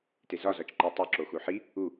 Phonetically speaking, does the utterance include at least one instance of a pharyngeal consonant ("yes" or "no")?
yes